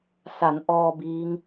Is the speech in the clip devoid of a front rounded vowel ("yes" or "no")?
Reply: yes